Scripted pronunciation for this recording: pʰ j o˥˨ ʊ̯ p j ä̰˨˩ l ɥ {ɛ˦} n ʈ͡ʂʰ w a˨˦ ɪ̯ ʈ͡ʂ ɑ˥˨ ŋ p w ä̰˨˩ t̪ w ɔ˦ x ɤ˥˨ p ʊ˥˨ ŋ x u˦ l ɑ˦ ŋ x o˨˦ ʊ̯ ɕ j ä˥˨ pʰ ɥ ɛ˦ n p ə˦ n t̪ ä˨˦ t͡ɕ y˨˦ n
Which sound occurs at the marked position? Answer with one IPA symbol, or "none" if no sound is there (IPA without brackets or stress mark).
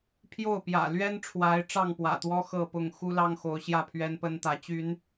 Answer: ɛ˦